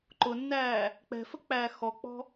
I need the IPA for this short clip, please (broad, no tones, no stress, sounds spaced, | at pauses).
ǃ ʊ nː æː | k͡p ɛ̤ f ə k͡p æː x ɔ k͡p ɔ̤